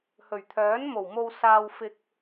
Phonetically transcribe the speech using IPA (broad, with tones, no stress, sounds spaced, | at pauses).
h ɵ˨˩ ɥ t̪ʰ œː˨˥ n m o˨˩ w m o˧ w s aː˧ w f ɪ˧ k̚